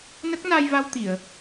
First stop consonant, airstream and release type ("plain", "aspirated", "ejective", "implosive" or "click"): plain